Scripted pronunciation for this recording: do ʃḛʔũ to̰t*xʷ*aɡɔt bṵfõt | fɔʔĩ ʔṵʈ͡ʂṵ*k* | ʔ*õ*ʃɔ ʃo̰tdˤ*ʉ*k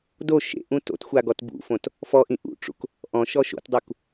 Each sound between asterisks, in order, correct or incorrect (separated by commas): correct, correct, incorrect, incorrect